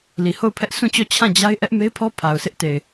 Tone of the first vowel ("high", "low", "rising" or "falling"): low